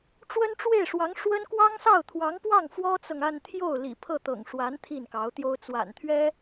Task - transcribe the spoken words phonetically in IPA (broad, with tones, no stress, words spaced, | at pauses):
ʈ͡ʂwə˥nʈ͡ʂwe˥˩ɪ̯ʂwɑ˧˥ŋ ʂwə˥n kwɑ˥ŋsɑ˥˩ʊ̯t̪ʰwɑ˧˥ŋpwɑ˥˩ŋ fwɔ˥t͡sɤ˨ŋa˥˧n t̪ʰjo˥˩ʊ̯lḭ˨˩ pʰɤ˥˩t̪ɤ̰˨˩ŋʂwa˧˥n t̪ʰi˥˩nkɑ˧˥ʊ̯t̪jo˥ʊ̯ t͡swa̰˨˩nt̪ʰɥɛ˥